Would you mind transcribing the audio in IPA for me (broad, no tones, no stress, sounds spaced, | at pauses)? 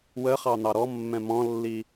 w ə χ ɑ n̪ ɑ ɾ ɔ mː ɛ̃ m ɔ̃ lː i